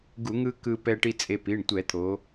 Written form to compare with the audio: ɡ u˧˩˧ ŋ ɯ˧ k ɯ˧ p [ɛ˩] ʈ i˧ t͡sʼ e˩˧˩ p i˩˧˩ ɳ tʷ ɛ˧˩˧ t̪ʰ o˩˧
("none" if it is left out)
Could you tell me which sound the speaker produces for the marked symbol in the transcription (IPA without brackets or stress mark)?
ɛ˧